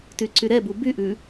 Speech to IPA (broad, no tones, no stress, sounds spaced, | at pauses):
t y ǀ y ɾ ɛ b u b y ʔ ʉ